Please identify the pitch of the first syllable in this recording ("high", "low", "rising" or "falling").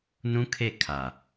high